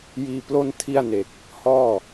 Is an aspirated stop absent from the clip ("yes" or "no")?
no